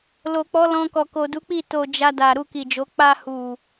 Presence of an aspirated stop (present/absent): absent